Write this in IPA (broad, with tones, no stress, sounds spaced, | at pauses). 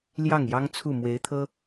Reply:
l j ɑ˥˩ ŋ j ɑ˥ ŋ t͡sʰ u˥˩ m w e˧˥ ɪ̯ t̪ʰ ɤ˥